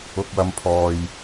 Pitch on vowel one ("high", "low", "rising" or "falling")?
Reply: low